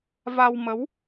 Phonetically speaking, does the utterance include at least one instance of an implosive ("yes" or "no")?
no